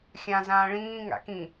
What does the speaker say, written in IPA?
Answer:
xʲ ã z ãː ɭ ĩː ŋ a̰ k ĩ

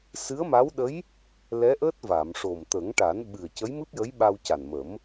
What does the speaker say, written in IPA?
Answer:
s ɨ˧˥ ə̯ m a˧˥ w ɗ ə˧˥ j | l ɛ˧˥ ʔ əː˦˥ t̚ v a˨˩˨ m ʂ o˨˩ m t̪ ə˨˩˦ ŋ ʈ a˨˩˦ n ɓ ɨ˨˩ ə̯ c ə˧˥ j m ɨ˦˥ p̚ j ə˧˥ j ɓ a˧ w c a˨˩ n m ə˨˩˦ m

